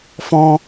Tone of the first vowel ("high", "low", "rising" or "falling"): high